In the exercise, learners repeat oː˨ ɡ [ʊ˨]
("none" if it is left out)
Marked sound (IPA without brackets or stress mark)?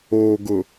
ʊ˨